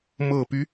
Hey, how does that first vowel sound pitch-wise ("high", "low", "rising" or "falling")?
low